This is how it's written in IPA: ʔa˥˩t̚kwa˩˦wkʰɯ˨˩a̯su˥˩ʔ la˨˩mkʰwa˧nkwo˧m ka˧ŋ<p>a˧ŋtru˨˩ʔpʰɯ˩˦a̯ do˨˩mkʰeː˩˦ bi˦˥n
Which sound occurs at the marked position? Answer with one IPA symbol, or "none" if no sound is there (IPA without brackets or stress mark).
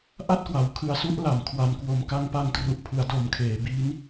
p